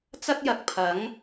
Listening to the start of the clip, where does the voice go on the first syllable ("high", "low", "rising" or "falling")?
high